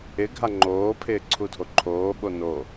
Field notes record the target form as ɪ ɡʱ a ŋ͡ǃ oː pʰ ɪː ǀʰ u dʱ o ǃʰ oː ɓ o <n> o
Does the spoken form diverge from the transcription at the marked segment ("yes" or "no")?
no